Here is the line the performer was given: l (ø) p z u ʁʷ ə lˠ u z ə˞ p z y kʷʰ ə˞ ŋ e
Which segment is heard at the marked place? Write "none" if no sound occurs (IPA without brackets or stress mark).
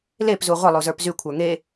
e